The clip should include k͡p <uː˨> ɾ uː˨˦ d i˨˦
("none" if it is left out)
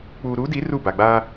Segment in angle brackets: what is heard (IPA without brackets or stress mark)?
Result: uː˨